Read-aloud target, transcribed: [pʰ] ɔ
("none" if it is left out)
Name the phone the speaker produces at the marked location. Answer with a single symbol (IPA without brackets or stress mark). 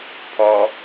pʰ